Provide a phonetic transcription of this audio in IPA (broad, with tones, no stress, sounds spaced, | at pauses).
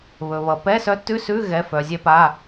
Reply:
β ɵ˩ β ʌ˩ p ɛ˧˥˧ s œ˧˥ t ʉ˧˥˧ s ʉ˧˥˧ ɣ ɛ˩˧˩ f œ˩ zʲ ɛ˧ p a˩˧˩